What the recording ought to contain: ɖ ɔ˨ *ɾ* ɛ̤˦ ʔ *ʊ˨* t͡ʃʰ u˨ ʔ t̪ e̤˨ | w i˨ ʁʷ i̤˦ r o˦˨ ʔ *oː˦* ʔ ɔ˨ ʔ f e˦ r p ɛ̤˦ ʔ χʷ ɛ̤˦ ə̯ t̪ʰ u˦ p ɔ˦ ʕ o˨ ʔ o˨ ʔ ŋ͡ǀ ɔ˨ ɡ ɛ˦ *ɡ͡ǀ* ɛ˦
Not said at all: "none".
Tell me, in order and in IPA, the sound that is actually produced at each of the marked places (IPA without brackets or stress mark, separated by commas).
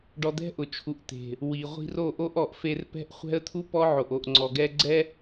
d̪, ʊ˨, o˦, ɡ͡ǀ